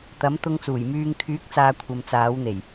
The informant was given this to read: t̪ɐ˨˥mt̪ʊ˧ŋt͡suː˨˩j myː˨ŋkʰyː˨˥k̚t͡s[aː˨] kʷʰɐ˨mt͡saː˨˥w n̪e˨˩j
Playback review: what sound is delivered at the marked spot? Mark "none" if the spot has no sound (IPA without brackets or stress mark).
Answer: aː˨